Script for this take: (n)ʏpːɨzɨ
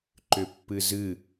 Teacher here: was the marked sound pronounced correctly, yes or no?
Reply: no